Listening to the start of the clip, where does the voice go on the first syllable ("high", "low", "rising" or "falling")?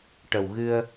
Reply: low